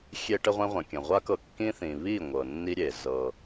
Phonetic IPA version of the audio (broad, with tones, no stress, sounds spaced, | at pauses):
xʲ e˦ ʈ ə˦ ʁʷ ẽ˦ ʁʷ ə̃˨ kʲ ə̃˨ ʁʷ a˦ k ɤ˧ kː ĩ˦ θ ĩ˨ β i˦˨ ŋʷ ɤ˨ nː i˦ ɾʲ e˨ z ɤ˧